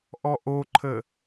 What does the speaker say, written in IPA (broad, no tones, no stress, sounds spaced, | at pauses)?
ʔ ɔ ʔ o ǃʰ ə